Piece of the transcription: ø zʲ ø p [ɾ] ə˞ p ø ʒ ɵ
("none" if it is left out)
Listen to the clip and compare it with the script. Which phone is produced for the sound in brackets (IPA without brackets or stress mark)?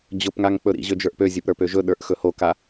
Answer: ɾ